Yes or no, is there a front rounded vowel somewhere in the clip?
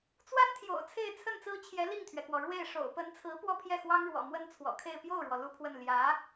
no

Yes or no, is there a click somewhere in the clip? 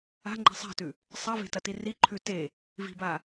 yes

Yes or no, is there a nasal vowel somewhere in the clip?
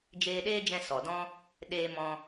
yes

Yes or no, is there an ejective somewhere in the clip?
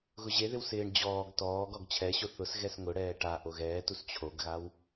no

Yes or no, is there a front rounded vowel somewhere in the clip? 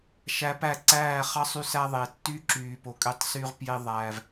yes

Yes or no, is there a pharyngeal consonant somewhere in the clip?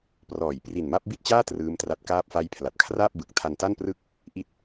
no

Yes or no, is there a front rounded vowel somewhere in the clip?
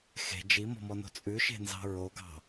no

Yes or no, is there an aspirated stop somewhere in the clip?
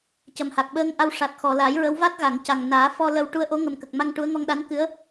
no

